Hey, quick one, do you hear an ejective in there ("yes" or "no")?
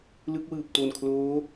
no